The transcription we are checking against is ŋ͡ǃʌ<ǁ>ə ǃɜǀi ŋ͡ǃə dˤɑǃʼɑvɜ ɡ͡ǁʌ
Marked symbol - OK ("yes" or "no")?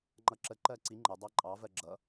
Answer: yes